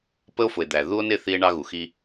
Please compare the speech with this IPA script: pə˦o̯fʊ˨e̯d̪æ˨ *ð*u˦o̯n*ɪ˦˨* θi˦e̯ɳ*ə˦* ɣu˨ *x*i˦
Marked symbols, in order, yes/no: yes, yes, no, yes

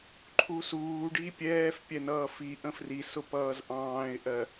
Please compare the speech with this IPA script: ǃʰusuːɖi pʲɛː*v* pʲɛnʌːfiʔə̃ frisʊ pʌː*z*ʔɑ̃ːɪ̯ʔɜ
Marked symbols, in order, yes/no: no, yes

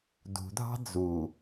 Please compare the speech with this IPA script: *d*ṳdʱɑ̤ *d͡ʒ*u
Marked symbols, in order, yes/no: yes, no

